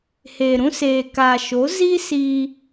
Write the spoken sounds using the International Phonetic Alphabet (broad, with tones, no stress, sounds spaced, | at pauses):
h eː˨ ɾ ũ˦ s eː˨ k aː˨ ʃ o˨˦ z i˦ s iː˦